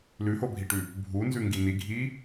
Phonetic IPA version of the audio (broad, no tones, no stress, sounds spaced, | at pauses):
l ʉ h o bʱ i ʈ ʉ | bʱ u n z ʉ ŋ ɡ i n i ɡʱ i